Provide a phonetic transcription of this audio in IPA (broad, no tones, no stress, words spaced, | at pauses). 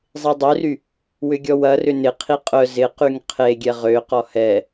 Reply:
zˤedˤøry | wʏɡʲɔwɐ rʏnɪ qʰiqʼœ zɪqyŋ qʰe ɡʲɛʁøqɔ hɛ